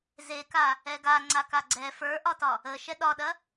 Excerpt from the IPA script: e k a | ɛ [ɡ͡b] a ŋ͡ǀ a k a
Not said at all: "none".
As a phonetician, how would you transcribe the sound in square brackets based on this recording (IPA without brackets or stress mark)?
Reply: ɡ